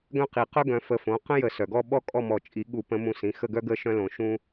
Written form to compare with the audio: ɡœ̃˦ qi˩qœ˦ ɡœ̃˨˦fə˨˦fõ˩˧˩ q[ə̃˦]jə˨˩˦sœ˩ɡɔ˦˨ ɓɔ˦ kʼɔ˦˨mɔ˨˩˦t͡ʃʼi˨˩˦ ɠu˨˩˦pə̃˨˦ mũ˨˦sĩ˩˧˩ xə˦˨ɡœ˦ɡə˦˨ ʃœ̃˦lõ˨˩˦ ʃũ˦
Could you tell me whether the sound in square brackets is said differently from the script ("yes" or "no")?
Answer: no